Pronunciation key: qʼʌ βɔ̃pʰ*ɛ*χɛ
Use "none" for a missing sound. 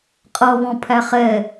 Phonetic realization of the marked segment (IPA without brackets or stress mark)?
æ